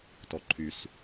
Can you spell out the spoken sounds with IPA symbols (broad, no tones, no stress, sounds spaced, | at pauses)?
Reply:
t ɔ ǃʰ y s